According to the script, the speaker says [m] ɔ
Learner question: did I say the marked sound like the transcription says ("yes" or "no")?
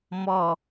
yes